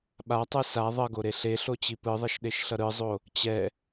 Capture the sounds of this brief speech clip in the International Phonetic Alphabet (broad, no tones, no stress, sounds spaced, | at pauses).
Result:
ɓ a tˤ ɯ s a ðˤ ʌ ɡ o ɾ e ɬ e ɬ o t͡ɕ i p ɯ ðˤ ɛ ʃ ɗ e ʃ ɬ ʌ ɾ ɯ zˤ o | t͡ɕ ɛ